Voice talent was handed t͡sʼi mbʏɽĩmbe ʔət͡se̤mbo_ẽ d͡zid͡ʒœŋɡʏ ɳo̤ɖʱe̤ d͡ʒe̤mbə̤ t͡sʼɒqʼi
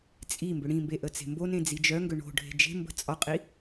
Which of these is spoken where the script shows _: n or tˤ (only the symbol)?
n